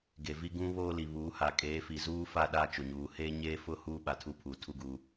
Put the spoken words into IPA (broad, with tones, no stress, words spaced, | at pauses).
ɡe˨vi˦ ɡũ˦ βoː˦li˨ βuː˨˦ha˨ kʼeː˨˦ fi˨zuː˦ fa˦˨ɗa˦˨ t͡ʃʊ˨ɲuː˨ heː˦ɲeː˦fʊ˦ huː˦ɓa˨tʰu˦˨pʰu˨ tʰu˦ɡu˦